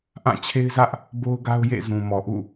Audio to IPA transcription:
ʔã˦˨t͡ɕʰe˦ɪ̯zä˦ʔ | bo˦ʊ̯ɡa˦ʊ̯jḛ˦˨zũ˨ mɔ˨ʔṵ˦˨

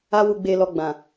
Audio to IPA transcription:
a˦wu˧ ɡ͡be˧ lɔ˧ɡ͡bã˨

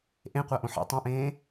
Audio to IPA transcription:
ʔẽqʷaʔõ ħḛ tˤõʔẽː

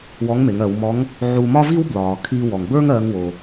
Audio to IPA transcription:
wɔ˧˥ŋme˩˧ŋɜ˩˧wmɔ˧˥ŋ | ʕu˧mɒ˥vi˥wblɒː˩ kʰi˧wɔ˩ŋbə˞˥ŋ ɜ˧˥ŋwo˩

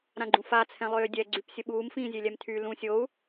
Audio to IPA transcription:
ɾãɡ͡ǃũfa t͡sʰɛ̃lˠøːdʲɛ ɡ͡ǀypsʲəɓuːm fĩːzʲelʲɛmtʰy lũsʲou̯

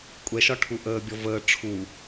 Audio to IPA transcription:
kʷʼɛʃɒʈʰu ʔəːbʲɔ vəː ʈ͡ʂʰu

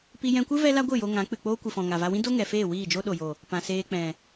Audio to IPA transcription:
pi˧jɛ̃˧kʷɨ˦ vɛ˦la˦ɡʷɨ˦˨jo˧ ŋã˨˦k͡pɨ˨k͡poː˦ kʷɨ˨fɔ̃˨ŋa˨va˧ wĩ˦do˦ ŋɛ˨feː˦˨ wiː˦˨d͡ʒo˦ɗo˨jo˨ | pã˨seː˧k͡pɛ̃˨

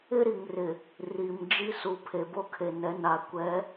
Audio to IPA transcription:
ɪ˦ɾi˨ŋrɪ˨ | ri˨m d͡ʒi˦su˨ pʰe˨bo˦kʰe˨nɛ˨˦ na˨kʷɛ˨˦

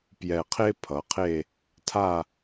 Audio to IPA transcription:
pjɛ˧˩qʰe˥pʰʌ˩˧qʰe˥˧ | tʰa˥˧

